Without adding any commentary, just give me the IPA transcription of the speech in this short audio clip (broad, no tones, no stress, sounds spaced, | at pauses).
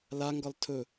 l a ŋ ɡ ɒ l tʰ ɵ